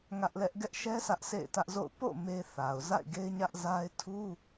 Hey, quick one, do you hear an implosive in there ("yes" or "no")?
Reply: no